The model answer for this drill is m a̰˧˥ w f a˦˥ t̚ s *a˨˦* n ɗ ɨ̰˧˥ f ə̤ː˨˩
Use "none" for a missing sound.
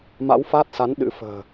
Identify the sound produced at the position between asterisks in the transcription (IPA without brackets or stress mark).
a˨˦